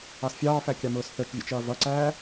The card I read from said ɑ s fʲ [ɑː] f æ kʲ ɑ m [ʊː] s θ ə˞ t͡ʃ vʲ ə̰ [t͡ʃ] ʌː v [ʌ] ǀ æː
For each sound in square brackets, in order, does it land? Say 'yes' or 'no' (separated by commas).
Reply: yes, yes, yes, yes